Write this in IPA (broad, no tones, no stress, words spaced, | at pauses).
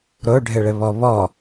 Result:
ɾoɖʱɘɭɘβɔ βɔ